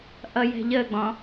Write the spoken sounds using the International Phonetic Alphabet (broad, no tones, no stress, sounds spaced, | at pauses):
ʔ ʌ j ɛ̤ ʎ ə ɡ͡b ɔ̃